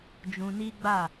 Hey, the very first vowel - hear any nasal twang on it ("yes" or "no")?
yes